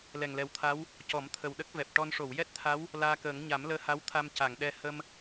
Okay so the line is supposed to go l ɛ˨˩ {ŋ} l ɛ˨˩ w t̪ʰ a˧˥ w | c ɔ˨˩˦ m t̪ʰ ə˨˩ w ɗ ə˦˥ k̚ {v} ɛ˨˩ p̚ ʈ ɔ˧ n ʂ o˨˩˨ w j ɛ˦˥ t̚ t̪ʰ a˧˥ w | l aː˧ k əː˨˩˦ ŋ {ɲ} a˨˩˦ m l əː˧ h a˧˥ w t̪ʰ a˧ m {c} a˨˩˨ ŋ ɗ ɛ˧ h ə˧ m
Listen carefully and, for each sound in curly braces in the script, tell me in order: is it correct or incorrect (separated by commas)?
correct, correct, correct, correct